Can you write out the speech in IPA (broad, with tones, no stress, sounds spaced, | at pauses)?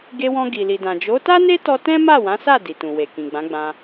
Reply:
ɡ e˧ w ɔ̃˧ ɡ i˨ l i˨ d ã˨ d͡ʒ o˨˦ t a˦ n e˦ t ɔ˧ t ɛ̃˦ m a˦˨ w ã˨˦ s a˦˨ d i˨ t ũ˨ w e˨ k ĩ˨ ɡ͡b ã˨˦ ɡ͡b ã˧